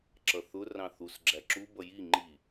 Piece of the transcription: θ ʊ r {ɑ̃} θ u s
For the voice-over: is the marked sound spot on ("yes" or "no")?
yes